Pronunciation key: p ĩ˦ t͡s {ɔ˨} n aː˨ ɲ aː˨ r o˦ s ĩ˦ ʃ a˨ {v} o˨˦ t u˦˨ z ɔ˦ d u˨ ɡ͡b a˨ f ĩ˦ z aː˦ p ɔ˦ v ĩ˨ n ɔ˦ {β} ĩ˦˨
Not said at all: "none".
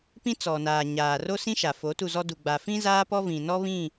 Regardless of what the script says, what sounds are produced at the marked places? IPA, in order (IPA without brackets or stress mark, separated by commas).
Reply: ɔ˨, f, β